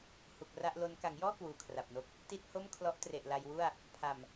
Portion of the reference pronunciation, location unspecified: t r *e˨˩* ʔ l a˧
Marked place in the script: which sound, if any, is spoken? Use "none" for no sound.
e˨˩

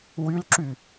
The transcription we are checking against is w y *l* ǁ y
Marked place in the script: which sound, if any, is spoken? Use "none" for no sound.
l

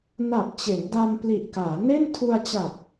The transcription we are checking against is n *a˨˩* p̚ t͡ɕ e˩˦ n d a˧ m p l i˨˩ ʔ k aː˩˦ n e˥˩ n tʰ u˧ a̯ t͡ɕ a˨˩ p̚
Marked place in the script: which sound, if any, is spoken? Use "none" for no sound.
a˨˩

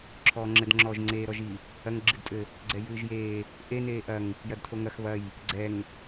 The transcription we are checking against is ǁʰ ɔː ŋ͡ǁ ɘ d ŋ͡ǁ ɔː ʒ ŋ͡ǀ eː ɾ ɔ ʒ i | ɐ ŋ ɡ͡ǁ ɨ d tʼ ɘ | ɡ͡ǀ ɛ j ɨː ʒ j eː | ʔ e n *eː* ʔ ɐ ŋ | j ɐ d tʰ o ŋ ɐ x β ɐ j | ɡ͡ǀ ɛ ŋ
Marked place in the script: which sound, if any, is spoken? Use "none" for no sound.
eː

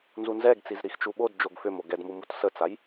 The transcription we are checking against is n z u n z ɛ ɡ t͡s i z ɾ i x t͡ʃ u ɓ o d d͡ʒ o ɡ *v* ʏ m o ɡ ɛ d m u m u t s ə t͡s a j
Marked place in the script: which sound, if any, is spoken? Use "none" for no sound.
f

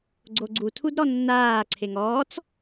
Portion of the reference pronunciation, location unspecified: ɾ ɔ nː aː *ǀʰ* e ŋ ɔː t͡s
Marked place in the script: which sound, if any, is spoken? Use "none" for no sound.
ǀʰ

